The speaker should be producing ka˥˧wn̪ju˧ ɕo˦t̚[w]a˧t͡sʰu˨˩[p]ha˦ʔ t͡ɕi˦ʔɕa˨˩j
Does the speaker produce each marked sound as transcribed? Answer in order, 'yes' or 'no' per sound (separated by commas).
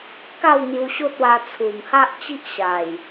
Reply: yes, no